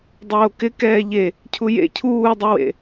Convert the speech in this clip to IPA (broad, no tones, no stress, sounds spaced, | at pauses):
dˤ oː k ɪ k ɛː ʎ e | cʰ u j ḛ cʰ uː dˤ u w ḛ